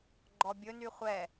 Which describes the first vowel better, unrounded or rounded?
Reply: rounded